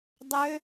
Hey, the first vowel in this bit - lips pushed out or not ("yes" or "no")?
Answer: yes